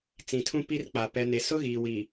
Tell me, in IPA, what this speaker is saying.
t͡s ĩ˨ tʰ ũ˦ p i˦ r k͡p a˨ p ɛ˨ n e˨ s ʊ˦ ɣ iː˨ w i˨

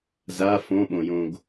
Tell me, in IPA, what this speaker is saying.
z a f õ ɓ õ j õ ɡ

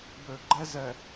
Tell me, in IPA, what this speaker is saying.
b ø˨ ɡ͡ǃ ɛ˦ z ɛ˨

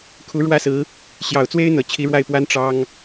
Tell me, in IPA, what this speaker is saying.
kʰ u˧˥ ɻ w ä˥ s ɹ̩˧˥ | ɕ j ɑ˨˩ ʊ̯ t͡s w e˥ ɪ̯ n̪ ɤ˨˩ t͡ɕʰ i˧˥ ɻ w a˥˩ ɪ̯ p w a˥ n ʈ͡ʂ ɑ˥ ŋ

